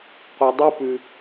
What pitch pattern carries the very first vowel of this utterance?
low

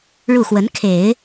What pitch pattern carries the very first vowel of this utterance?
falling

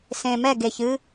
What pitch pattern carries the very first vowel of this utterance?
low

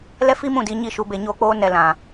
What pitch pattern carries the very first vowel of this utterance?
high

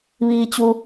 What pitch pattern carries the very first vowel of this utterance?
low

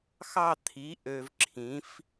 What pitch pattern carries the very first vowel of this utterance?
falling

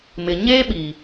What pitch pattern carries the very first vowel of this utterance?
low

